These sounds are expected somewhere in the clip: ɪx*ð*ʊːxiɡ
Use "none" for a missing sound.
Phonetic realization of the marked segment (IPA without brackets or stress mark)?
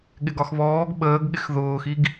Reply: ð